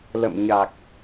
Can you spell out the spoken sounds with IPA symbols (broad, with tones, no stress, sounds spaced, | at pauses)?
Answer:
l ə̰˧˨ m ɲ a˨˩ k̚